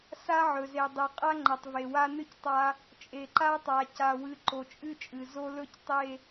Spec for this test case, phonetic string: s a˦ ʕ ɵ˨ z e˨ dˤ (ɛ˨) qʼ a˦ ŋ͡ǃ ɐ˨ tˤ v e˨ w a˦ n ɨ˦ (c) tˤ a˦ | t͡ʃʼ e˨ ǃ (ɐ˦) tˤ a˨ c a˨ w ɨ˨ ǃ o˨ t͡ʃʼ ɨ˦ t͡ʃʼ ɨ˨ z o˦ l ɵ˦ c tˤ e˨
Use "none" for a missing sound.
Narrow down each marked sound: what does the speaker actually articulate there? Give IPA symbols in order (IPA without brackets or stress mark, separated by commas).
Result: e˨, c, a˦